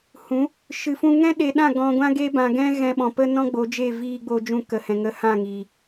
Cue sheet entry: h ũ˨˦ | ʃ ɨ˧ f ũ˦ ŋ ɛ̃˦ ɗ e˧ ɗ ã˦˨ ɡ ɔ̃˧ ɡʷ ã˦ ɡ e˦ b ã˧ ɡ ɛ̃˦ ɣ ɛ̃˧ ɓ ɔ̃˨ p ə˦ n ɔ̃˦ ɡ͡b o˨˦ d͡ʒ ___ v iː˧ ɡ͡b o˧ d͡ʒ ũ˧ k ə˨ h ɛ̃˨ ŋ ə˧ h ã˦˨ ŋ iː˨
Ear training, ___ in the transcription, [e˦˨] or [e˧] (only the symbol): e˦˨